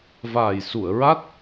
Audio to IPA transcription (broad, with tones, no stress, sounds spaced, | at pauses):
v aː˨˩ j s u˨˩˨ ə̯ ɹ a˦˥ t̚